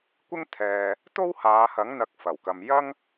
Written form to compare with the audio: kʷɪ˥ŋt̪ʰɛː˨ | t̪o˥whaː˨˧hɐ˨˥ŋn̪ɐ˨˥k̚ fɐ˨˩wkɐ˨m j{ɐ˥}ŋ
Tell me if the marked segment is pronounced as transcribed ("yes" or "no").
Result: yes